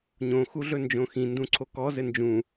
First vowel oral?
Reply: no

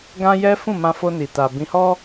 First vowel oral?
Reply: no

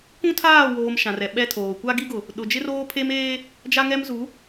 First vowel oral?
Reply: no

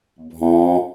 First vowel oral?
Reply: no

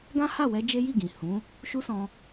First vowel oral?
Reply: no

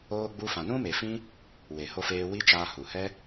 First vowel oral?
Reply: yes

